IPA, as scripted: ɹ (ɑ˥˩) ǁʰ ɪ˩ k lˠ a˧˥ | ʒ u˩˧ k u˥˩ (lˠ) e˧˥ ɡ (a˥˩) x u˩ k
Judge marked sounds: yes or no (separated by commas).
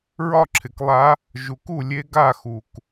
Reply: no, no, yes